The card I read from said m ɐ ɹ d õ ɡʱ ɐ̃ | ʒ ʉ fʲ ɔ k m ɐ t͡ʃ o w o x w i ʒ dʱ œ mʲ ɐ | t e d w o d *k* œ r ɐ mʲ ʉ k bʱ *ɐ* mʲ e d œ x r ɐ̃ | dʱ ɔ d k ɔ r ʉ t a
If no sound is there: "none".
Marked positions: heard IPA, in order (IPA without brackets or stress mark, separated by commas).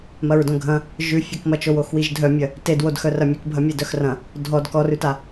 x, ɐ